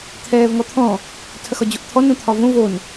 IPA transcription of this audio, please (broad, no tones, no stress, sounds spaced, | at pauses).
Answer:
t̪ʰ ɛː v ŋ ɔ t̪ʰ ɔ̃ | tʰ ɐ x ɒ d͡ʑ o ʔ t̪ʰ ɔ n õ t̪ʰ ɒ v õ v o n